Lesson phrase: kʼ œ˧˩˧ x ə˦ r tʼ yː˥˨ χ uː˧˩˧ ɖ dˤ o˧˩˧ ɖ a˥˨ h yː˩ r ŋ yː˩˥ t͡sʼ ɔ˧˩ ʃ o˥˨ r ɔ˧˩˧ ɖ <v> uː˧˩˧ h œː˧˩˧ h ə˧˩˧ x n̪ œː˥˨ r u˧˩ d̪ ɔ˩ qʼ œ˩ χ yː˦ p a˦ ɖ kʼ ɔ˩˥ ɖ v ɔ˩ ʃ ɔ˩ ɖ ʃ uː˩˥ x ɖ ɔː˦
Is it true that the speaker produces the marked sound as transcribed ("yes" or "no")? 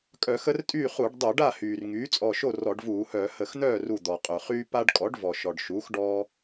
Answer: yes